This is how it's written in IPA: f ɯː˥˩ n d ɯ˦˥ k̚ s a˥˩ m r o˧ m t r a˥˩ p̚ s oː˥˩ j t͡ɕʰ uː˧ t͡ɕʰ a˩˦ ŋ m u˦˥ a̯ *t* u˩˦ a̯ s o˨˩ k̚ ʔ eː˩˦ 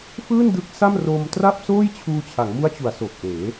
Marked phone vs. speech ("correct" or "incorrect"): incorrect